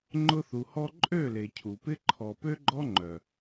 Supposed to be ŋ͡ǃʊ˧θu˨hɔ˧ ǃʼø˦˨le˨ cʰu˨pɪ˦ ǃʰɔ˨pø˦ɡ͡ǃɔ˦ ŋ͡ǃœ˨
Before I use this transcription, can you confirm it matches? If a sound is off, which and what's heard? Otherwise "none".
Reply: none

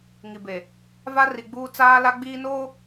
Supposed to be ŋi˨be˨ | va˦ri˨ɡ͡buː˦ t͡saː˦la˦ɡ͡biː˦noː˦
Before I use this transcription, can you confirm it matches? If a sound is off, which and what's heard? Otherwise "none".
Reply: none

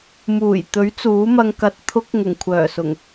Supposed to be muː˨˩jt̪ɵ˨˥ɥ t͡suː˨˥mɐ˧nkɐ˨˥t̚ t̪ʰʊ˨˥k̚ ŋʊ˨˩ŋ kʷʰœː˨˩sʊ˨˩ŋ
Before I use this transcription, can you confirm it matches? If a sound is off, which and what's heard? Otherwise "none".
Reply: n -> ŋ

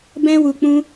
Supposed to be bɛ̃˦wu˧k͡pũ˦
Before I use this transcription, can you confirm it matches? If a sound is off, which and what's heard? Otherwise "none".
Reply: none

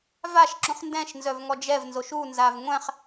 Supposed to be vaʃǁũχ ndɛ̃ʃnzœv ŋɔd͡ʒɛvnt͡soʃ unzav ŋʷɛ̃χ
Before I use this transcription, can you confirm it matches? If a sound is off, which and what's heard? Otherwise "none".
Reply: t͡s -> z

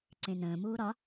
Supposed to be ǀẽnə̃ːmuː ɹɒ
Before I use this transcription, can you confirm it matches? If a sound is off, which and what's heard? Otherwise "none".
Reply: ɹ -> ɾ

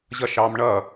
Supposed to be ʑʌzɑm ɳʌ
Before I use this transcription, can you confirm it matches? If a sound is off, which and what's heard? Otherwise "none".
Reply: z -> ʃ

